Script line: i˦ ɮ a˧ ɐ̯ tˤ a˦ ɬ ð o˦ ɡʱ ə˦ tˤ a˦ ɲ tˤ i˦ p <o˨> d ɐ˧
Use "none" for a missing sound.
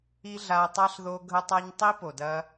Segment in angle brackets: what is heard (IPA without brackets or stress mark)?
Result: o˨